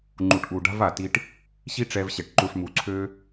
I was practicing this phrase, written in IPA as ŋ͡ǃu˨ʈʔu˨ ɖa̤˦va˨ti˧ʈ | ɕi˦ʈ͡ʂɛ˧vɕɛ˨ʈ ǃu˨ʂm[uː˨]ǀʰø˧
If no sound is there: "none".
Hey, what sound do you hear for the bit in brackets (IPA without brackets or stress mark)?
u˨